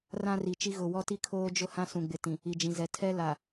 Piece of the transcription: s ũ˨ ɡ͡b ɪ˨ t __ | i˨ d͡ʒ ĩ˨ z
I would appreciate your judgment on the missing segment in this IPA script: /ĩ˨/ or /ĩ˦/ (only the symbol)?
ĩ˨